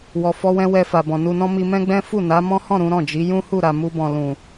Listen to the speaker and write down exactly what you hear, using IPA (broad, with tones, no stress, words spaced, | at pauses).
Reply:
wɔ˨fɔ˧wɛ̃˧ wɛ˧fa˨bɔ̃˨ nu˨nɔ̃˧ mi˧mɛ̃˦ɡ͡bɛ̃˦ fu˦˨na˨˦ mɔ̃˦hɔ̃˦˨ ɾũ˨˦ ɾɔ̃˦˨d͡ʒi˨˦ jũ˦hu˦˨ ɾa˨ mu˧bɔ̃˨ lũ˨